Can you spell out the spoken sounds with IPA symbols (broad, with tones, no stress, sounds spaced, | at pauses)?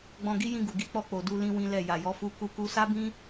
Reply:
ɡ͡b ɔ̃˧ ɡ i˦ j ĩ˧ ɡ u˨ ɡ i˧ k͡p ɔ˧ k͡p o˨ d u˧ l ĩ˦ w ĩ˦ l ɛ˦˨ j a˨ j ɔ˨˦ f u˧ k u˧ k u˧ s a˦ b ĩ˦